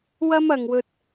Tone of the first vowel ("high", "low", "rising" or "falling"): high